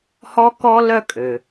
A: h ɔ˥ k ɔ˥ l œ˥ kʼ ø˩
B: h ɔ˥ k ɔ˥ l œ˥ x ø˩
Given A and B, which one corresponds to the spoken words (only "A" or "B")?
A